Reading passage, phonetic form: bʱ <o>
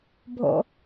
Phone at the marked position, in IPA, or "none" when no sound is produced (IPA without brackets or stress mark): o̰